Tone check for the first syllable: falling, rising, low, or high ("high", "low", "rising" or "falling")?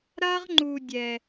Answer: high